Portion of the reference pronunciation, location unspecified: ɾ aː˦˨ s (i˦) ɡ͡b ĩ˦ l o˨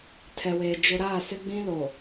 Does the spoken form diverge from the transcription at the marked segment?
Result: yes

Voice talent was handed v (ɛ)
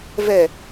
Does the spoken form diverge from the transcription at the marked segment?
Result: no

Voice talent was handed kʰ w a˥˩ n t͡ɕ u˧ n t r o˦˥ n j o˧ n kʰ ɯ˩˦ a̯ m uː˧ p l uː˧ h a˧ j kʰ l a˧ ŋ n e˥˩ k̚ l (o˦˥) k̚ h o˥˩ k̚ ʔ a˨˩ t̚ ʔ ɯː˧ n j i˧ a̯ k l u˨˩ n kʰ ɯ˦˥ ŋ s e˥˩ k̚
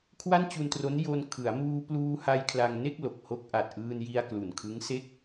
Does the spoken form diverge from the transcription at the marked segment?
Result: yes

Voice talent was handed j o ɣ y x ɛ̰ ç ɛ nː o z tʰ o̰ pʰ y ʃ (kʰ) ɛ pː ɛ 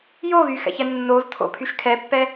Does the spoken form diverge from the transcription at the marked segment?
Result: no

